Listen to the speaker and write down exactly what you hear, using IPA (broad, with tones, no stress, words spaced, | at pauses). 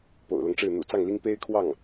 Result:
po̰˨˩ʊ̯lɤ˦ŋʈ͡ʂɻ̩˥˩ n̪ṵ˨˩t͡sɑ˥˩ŋli˥ŋ pe˥ɪ̯kʰwɑ˥˩ŋ